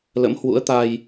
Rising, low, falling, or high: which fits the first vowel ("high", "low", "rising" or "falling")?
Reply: rising